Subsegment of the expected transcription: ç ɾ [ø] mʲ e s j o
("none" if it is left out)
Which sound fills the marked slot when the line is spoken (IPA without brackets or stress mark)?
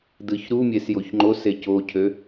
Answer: u